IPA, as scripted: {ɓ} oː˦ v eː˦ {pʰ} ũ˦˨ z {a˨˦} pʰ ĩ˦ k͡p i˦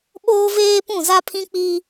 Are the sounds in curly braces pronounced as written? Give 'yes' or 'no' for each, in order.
yes, no, no

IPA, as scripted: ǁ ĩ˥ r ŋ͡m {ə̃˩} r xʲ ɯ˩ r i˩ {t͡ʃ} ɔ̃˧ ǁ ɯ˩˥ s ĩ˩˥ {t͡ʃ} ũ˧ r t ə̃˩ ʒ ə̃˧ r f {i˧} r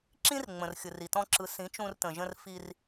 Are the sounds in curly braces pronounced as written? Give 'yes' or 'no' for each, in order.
yes, no, yes, yes

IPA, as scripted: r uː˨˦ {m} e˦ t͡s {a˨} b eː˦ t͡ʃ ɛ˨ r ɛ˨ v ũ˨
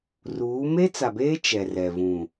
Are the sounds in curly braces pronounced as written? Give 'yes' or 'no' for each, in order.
yes, yes

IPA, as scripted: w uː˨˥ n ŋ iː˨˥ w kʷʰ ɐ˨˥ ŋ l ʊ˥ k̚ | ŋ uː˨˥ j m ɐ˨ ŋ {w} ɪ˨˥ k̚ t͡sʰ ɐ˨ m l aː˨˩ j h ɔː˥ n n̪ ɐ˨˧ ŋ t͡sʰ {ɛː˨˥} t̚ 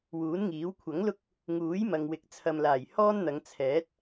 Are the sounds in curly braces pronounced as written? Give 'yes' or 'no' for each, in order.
yes, yes

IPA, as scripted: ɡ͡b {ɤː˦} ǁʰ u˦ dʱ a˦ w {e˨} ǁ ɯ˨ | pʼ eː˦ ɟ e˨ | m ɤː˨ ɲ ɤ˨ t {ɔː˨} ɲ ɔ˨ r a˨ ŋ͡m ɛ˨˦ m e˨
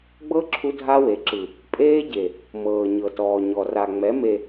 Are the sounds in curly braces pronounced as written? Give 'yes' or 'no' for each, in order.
no, yes, yes

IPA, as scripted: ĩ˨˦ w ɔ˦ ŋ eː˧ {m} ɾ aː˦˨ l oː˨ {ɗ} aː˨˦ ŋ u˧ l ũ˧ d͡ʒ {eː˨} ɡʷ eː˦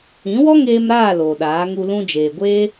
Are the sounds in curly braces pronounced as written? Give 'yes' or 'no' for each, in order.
yes, yes, yes

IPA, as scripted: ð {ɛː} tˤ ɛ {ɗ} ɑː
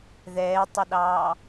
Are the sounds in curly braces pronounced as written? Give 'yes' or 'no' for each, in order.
yes, yes

